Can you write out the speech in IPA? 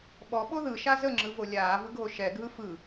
ɓɔɓo ðɯʃa zəŋ͡ǁɯvo lʲaːvɯɡʱo ʃɛɡʱɯ fɯ

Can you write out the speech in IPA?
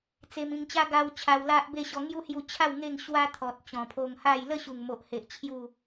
t͡se˧mĩ˧ŋt͡ɕa˦ ɡa˧w t͡ɕʰa˧wla˦ʔbe˥˧ɕɔ˧ ŋju˦hju˧t͡ɕʰa˥˧w ŋe˥˧ŋ ɕwa˦t̪ʰɔ˨t̚ t͡ɕɔ̃˨˩pʰo˧ŋha˥˧j lə˥˧ɕu˨˩ŋmo˨ʔhe˨ʔ t͡ɕʰju˥˧

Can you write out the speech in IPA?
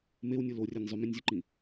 mewnʲɯ lorʲænʲ zˤymĩnʲzʲuǃĩ

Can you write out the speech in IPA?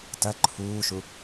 tɐ ǃʰuːʃu

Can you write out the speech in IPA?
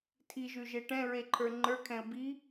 tʰiʒʉʒe ʈɛ̃ɹeǃʰə˞ ŋ͡ǃə˞kʰɛ̃ə̯ bi

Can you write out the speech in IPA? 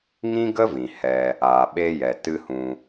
ŋĩ˦ɡə˦vĩ˨ hɛ˧ | aː˨ɓe˧jɛ˨ tɨ˦hũ˧

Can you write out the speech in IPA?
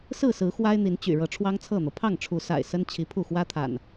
sɹ̩˥˨sɹ̩˨˦ xwa˦ɪ̯n̪i˨˦nt͡ɕy̰˨˩ ɻɤ˨˦ʈ͡ʂʰwɑ˦ŋt͡sʰɤ˥˨n̪ɤ˩ pʰɑ˥˨ŋʈ͡ʂʰu˨˦sa̰˨˩ɪ̯ sə˦nt͡ɕʰi˨˦pʰu˥˨ xwä˦t̪ʰa̰˨˩n

